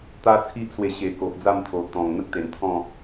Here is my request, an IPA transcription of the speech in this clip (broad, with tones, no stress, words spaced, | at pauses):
t̪a˦t͡sʰi˦ʔswe˧ ɕe˨˩ ko˨ʔd͡za˥˧mt̪ʰo˨˩ t̪ɔ̃˨˩ŋn̪ə˦k̚ t̪e˨˩nt̪ʰɔ̃˥˧